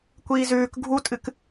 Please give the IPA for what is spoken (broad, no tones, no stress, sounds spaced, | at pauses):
kʷ iː z ʉː k ɡʱ u tʼ ɨ k